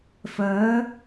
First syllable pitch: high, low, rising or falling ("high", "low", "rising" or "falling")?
rising